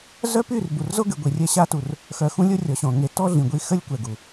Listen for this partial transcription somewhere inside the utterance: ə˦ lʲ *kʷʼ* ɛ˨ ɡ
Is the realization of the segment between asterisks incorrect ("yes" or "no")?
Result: yes